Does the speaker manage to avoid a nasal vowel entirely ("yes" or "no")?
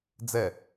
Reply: yes